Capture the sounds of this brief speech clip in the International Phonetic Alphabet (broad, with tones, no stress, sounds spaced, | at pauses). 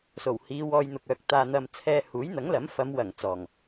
s o˨˩ w h iː˨˧ w ɔː˧ j n̪ ʊ˨ k̚ œː˨ k̚ t̪ aː˨ n̪ ɐ˨ m t͡sʰ ɛː˧ h uː˨˥ j n̪ ɐ˨˥ ŋ l ɐ˨˥ m f ɐ˨˧ m w ɐ˨˩ ŋ t͡s ɔː˨˩ ŋ